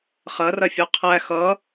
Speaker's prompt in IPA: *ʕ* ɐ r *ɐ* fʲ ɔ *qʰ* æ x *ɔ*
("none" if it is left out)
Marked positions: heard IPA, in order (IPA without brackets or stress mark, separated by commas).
χ, ɐ, qʰ, ʌ